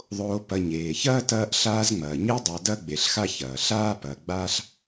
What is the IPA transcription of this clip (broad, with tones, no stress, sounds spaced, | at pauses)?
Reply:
ðˤ oː˨ p ɐ˨ ɲ eː˩ ç ɐː˥ t ɐː˦ ʔ ɬ aː˦ z ŋ͡m ɐː˩ ɲ e˦ dˤ a˨ d ɐ˥ ɡ͡b e˨ ɬ x a˥ ç ɐː˩ ɬ aː˥ p ɐː˨ ɡ͡b a˦ ɬ